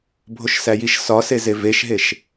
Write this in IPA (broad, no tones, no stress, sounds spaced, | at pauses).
bʱ o ʃ s æ j i ʃ s ɒ s e z e v e ʃ ɦ e ʃ